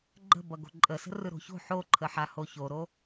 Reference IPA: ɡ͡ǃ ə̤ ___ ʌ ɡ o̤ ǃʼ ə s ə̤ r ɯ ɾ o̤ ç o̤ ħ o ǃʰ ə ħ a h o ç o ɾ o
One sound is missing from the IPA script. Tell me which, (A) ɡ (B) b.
B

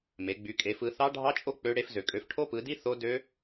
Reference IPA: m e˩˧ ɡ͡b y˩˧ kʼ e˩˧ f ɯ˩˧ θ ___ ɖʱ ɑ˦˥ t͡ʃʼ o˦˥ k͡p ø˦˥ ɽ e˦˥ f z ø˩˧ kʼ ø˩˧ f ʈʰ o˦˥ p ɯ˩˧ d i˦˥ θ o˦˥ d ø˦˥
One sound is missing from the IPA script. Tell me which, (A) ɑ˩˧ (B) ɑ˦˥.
B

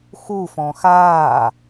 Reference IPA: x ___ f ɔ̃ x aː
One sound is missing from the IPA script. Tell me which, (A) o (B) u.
B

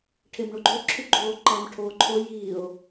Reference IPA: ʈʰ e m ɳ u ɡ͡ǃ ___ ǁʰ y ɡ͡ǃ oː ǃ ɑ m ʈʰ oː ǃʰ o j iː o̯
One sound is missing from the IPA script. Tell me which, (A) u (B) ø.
B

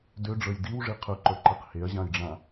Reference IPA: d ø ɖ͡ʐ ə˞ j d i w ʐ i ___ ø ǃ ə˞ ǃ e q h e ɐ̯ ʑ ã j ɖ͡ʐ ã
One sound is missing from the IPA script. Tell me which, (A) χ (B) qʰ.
B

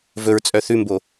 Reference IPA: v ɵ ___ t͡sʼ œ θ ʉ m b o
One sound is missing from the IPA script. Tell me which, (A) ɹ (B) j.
A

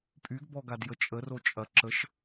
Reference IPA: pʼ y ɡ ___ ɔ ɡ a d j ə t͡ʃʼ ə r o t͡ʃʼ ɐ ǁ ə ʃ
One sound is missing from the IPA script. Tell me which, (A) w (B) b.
B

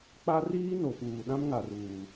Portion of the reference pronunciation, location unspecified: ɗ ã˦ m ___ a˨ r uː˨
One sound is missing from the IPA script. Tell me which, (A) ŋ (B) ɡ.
A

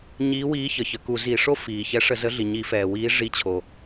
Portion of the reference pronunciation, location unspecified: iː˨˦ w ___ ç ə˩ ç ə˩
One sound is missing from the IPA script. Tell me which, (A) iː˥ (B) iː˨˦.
B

